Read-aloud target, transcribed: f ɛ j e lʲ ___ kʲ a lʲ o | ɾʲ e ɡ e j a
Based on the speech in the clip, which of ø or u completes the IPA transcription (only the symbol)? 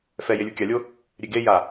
u